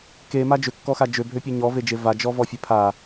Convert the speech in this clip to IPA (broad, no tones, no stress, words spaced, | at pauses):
kema d͡ʒøkːɔxa d͡ʒøbʱøpʲø ɲɔved͡ʒe vad͡ʒɔvɔfʲe pʰa